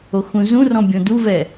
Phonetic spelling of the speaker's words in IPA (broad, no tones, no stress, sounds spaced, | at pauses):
o x ũ z ũ r ɔ̃ bʲ õ d u v ɛ